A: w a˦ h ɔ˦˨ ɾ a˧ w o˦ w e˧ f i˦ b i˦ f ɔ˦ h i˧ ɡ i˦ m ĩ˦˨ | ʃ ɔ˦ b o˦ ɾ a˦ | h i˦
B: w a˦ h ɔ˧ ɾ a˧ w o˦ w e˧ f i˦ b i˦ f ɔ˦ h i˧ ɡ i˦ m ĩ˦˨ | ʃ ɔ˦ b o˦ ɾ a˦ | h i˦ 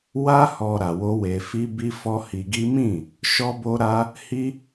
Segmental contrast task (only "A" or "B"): B